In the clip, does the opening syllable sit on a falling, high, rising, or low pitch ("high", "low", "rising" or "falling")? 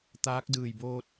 rising